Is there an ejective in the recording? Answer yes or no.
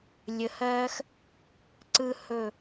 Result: no